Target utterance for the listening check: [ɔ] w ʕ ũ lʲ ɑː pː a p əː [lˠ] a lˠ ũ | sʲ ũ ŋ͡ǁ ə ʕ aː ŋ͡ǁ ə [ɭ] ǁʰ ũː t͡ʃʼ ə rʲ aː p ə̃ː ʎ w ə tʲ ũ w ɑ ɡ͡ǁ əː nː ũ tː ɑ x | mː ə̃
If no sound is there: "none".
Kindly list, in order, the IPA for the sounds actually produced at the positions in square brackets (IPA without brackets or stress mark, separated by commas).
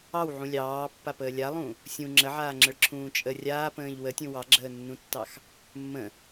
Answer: ɑ, lʲ, ɭ